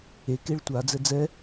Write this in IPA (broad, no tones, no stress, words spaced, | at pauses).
e keɭtʷa d͡zɛd͡zɛ